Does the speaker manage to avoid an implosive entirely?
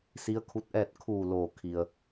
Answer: yes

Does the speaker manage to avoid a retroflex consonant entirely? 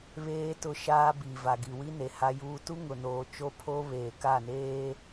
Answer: yes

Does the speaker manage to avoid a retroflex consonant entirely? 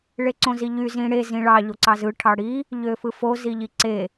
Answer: no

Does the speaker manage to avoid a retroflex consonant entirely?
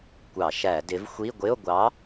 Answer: yes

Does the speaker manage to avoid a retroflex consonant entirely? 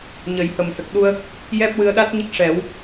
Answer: no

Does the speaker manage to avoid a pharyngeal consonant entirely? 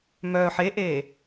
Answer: no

